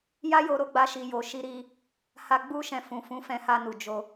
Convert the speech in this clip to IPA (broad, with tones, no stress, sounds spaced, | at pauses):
j a˦ j o˧ ɾ o˧ ɡ͡b a˧ ʃ i˨ j o˨ ʃ i˧ ɾ i˧ | h a˧ ɡ͡b u˦ ʃ ɛ̃˧ f ũ˨ f ũ˨˦ f ɛ̃˧ h a˧ n u˨ d͡ʒ o˧